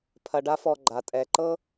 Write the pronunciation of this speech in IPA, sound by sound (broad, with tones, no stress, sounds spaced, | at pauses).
pʰ ɐ˧ ɖ a˦ f ɔ˧ ɡ͡ǃ a˨ tʼ ɛ˨ ǃ ɤ˧